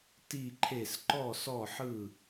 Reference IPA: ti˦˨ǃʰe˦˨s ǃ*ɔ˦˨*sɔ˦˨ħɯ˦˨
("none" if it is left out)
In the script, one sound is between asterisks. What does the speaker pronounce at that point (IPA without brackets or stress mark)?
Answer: ɔ˦˨